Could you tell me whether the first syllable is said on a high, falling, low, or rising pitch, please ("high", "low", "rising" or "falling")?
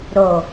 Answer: low